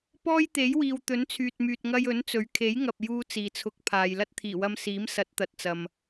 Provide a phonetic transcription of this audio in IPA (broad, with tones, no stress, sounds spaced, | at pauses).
p ɔː˥ j t̪ e˨˥ j w iː˨ w t̪ ɵ˨˥ n t͡sʰ yː˨ t̚ m yː˨ t̚ ŋ ɐ˧ j ɵ˨˥ n t͡s ɵ˨˥ ɥ kʰ e˨˥ j ŋ ɐ˨ p̚ j uː˥ t͡s iː˨ t͡sʰ ʊ˧ k̚ pʰ aː˨ j l ɐ˥ t̚ t̪ʰ iː˨˩ w ɐ˧ m s iː˨˥ m s ɐ˨˥ t̚ t̪ ɐ˨ t̚ t͡s ɐ˨ m